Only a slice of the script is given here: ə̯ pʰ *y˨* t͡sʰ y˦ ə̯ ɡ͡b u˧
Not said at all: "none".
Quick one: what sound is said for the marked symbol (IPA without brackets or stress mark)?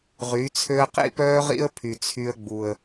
y˧